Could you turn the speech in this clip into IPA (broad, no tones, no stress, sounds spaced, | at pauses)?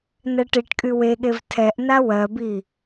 n ɛ ʈ i ʈ kʼ y w e ɠ e v tʰ ɛ ʔ n a w ɜ b i